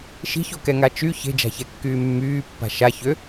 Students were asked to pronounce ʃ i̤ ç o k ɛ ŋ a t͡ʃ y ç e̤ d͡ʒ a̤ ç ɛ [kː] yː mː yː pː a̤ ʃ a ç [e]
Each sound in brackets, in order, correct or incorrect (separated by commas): correct, incorrect